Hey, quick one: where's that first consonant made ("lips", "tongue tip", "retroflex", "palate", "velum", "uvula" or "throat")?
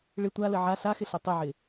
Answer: retroflex